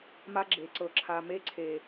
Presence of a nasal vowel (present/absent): absent